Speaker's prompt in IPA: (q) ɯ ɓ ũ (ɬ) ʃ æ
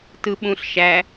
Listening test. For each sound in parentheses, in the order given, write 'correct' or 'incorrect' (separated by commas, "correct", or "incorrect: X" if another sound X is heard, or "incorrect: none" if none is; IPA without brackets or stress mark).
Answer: incorrect: t, correct